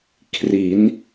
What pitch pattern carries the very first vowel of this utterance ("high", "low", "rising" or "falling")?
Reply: rising